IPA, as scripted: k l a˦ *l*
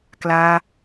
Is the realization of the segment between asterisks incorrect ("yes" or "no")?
yes